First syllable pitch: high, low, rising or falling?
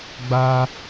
high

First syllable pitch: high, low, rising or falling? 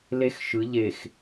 high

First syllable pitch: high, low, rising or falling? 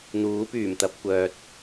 rising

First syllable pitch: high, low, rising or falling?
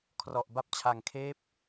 low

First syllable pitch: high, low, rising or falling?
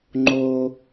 high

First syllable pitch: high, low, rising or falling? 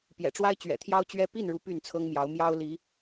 low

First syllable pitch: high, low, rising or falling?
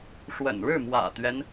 low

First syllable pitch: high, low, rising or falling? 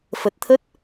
low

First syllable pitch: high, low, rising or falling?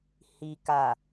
low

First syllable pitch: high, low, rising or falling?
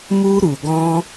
high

